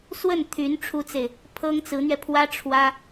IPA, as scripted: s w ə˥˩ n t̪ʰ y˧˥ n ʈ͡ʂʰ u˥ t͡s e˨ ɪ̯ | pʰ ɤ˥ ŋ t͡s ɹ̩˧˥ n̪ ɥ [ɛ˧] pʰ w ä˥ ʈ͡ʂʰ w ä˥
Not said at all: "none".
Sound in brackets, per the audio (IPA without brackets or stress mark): ɛ˧